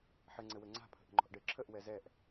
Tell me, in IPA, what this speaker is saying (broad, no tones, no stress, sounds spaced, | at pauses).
ħ ɘ ŋ͡ǀ ɘ w ɘ ŋ͡ǀ a̤ pʰ ə̤ ʔ ə̤ ŋ͡ǃ ɔ̤ ʔ ɖ ɘ ǁʰ ə ʔ w ɛ z ɛ ʔ